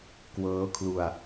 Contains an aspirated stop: yes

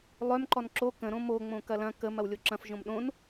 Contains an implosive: yes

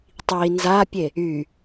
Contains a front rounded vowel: yes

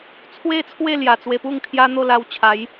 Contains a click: no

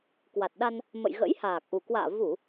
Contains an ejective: no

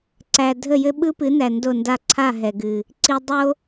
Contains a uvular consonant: no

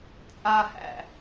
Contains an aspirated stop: no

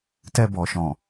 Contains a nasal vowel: yes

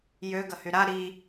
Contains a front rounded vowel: yes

